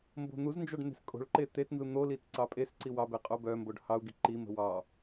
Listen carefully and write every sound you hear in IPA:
mbo̤n̪uznd͡ʒɑɖ n̪e̤skʼo̤ɭǃe t̪etnzu n̪olit ǀɑpʼesǀi wɑbe qʼobœmboɖ hɑu̯ɡi ǃimə̤ wɑ

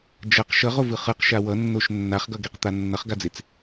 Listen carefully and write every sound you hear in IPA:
d͡ʒʌq ʃʌʁovɯ χɯqʃa wʌnːoʃ nːaχɡʌɡeqt̪a nːʌχɡad͡zet͡s

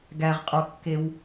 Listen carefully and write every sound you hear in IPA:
ɡæʁqʼokːew

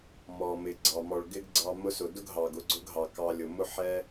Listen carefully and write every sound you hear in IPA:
mɔ˨mɪ˨ ɡ͡ǀɑ˨mɔ˨ɭ ɡɪ˦ɡɡ͡ǀɑ˧ mʊ˧sʊ˨dʊ˦ɡ ɦɑ˨ɡ ʊ˧ɡ͡ǀʊ˦ɡɦɑ˨ kɑ˧lʲʊ˨ mʊ˦ħɛ˦

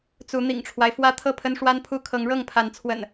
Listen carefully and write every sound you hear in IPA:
t͡su˨˦ n̪ḭ˨˩ŋʈ͡ʂʰwa˦ɪ̯fwä˦ t̪ʰɤ˥˨pʰə˦nʂwa˦npʰu˦ kʰɤ˨˦ŋɻɤ˥˨ŋpʰa˨˦nt͡sʰwə̰˨˩n

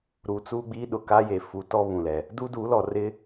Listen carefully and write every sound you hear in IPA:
ɾu˨ t͡suː˦ɡ͡biː˦ ɗʊ˨ka˦je˨ fu˨˦ tɔ˦ βũ˨lɛ˨ | du˦du˨˦lɔ˨ rɪ˦

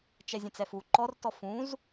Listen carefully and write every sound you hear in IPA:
t͡ʃɛzʲə̃t͡sɛfu ǃɔrtɔ fũz

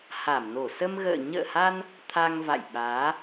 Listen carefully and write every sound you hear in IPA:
ha˧˩mno˧˩ sə˧mɣə̰ː˧˨ ɲə̰ː˧˨ha˧n | t̪ʰa˧ŋva̰˧˨jɓaː˨˦

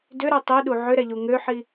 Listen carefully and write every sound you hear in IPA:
dʏɾɛ tˤiɗu ʕʏɾɛʎu ŋøħi

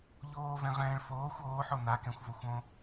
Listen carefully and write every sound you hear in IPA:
ʎoːvɛ̃ ʁɛ̃ːɭfoːxʷ oːħo nakɛ̃xʷvoxʷõ

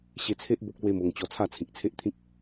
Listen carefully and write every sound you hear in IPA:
ɕe˧t͡sʰe˦ʔ bo˦k̚lwe˦mo˧ŋ t͡ɕɔ˧t͡sʰa˥˧t͡sʰĩ˨k̚t͡sʰe˦ʔ t̪ʰĩ˦k̚

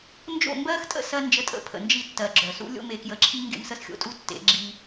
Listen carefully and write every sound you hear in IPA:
nd͡ʒo̰˦˨ mbɜ˦x tʼə̰˦sɜ˧ nd͡ʒə˧ tʼə̰˧pʰə̰˨nd͡ʒi˧ tːɜ˨ɡ͡ǁœ˨sṵ˦ lʲo̰˦me˧kjə˧ǁʰi˦ ŋɡḛ˧msə˧sxʲo̰˧tʼu˧ tːḛ˨˦ɡ͡ǁi˧

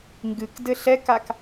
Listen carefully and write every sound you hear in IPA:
ŋɡɨk dɘɬɛkak

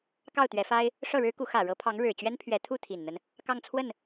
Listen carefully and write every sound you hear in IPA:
kɑ˥˩ʊ̯t̪ɥɛ˧˥fa˥ɪ̯ | ʂɤ˥˩ɻɻ̩˥ku˧˥ xä˨˩ɻɤ˧˥pʰɑ˧˥ŋ ɻɻ̩˨˩ t͡ɕɥɛ˥npʰɥɛ˧˥ t̪ʰu˥˩t̪ʰi˨˩nn̪ə˦n | kɑ˥˧ŋt͡sʰwə˥˩n

